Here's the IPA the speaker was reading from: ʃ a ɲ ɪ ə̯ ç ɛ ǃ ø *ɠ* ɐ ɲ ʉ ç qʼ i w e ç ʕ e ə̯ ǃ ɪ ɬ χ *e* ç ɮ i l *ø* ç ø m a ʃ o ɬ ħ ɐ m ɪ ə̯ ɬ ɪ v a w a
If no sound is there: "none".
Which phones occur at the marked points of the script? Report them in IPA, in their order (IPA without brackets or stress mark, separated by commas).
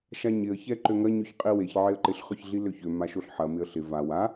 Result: ŋ, ø, ø